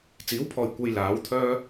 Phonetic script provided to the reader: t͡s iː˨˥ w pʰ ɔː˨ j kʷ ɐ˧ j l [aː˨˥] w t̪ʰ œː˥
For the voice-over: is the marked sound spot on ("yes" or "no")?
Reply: yes